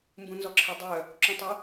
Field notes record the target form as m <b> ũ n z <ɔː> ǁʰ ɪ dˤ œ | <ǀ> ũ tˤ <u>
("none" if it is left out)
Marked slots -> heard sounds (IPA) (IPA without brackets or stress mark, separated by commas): b, ɔ, ǁ, ʏ